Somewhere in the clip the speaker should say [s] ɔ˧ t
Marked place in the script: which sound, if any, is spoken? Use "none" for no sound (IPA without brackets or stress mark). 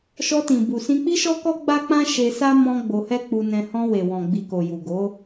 ʃ